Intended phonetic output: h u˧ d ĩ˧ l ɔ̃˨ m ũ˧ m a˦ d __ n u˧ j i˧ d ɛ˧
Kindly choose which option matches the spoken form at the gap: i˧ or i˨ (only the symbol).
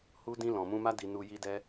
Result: i˧